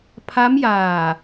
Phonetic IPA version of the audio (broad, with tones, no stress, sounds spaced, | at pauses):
pʰ a˦˥ m j aː˨˩